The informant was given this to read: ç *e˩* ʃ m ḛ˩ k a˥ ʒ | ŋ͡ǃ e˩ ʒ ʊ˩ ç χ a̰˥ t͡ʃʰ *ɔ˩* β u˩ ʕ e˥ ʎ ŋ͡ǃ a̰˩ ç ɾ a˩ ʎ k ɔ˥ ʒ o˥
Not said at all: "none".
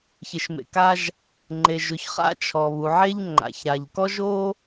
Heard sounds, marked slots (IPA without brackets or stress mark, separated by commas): e˩, ɔ˩